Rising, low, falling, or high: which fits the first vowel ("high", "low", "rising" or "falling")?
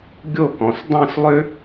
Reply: falling